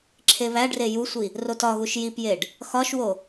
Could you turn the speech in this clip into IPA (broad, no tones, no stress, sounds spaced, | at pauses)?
ǁʰ e β æ ɖ r e j u sʷ i | r o t ɒ ɣ u ʃ j i p j e ɖ | x ɒ ʃ w o